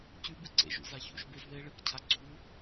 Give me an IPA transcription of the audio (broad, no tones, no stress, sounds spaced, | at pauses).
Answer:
c ʉ b ɨ ǀ ḛ ʒ ṵ z a ç ṵ ʃ b e z ð e ɭ ɨ k cʰ a ɡ͡ǀ u